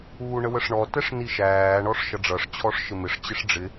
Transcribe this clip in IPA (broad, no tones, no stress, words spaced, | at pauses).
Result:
uːɳəwəʂɳɔ tɛʂniʃæː ɳɔʂʃʌɖ͡ʐʌʂ t͡ɕʰɔʂʃɪmɪʂ t͡ɕɪʂɖ͡ʐɪ